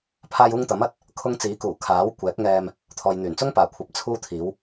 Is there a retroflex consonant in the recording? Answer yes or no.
no